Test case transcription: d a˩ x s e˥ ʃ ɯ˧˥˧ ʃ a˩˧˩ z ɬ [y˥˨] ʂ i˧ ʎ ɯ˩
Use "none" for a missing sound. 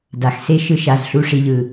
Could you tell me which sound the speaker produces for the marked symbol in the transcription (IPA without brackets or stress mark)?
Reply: u˥˨